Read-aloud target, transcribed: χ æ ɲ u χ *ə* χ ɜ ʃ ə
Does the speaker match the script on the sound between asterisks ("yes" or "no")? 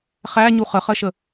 yes